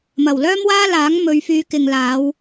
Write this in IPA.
mɐ˨˩wlœː˥mwaː˥laː˨˥ŋ mɵ˨˧ɥfyː˨˧kɪ˨ŋlaː˨˧w

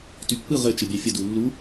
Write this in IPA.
typːɯ ʁɘ t͡ʃɘbʲɑfʲə dulːu

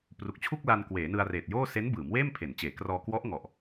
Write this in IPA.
pru˨˩k̚t͡ɕʰu˥˩k̚la˧n kweː˩˦nɯ˧a̯reː˨˩t̚joː˥˩ se˦˥nbɯː˩˦m weː˥˩mpʰe˩˦nt͡ɕeː˩˦krɔː˧ kwɔ˦˥ʔŋɔ˨˩ʔ

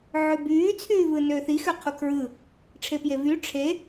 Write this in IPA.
ʕøbyː t͡sʰyːvɯnøθi xøqʰukʰɹɯ | ʈ͡ʂʰepjevy ʈ͡ʂʰe

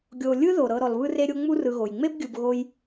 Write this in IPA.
ɡʲo˨ lʲɯ˦ðo˩ɾɤ˨ ɾɔ˨lβɯ˦re˦ɾʲo˦ ŋ͡mu˦rɯ˨ɣo˩j ŋ͡me˥bɡʲɯ˨b ɣo˦j

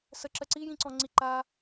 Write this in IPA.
səǁə ǀijĩǀɔ̃ŋ͡ǀi ǃa

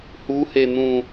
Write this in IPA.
huhen̪ũ

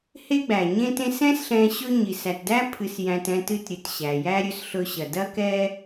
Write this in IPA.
he˥ ɡ͡bæ˩ɲẽ˥tẽ˥s ɛ̃˥sɬɛ̃˧ ɕɵ˥ ɲi˩sæ˩tdæ˥ pʰɨ˧sjæ̃˧t ɛ̃˧tɨ˧tɾʲɨ˩t ɕæ˩jæ˥ɾʲɵ˥s ɬɵ˧ɕɐ˩ dɐ˥ kɛ˥

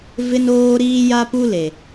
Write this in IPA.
vɪ˦noː˦ ɾiː˦ja˦pu˦ le˨

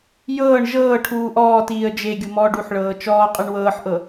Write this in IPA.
jɤːɳ ʒɤːʈʰuː ʔɔːtiːə̯ d͡ʒeɡʲu mɔːɖuħɭɤː t͡ʃɔːqʼɯɳ wɤːħʔɤ

